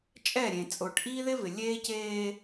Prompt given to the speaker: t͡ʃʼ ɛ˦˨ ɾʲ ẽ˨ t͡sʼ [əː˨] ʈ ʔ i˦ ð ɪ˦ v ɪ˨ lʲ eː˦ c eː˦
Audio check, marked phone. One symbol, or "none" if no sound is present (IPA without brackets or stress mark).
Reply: ʊː˨